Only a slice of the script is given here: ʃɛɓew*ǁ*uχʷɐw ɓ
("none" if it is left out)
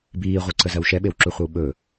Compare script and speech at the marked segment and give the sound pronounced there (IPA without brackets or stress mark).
ǁ